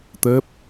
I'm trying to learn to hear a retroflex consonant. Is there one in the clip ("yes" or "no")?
no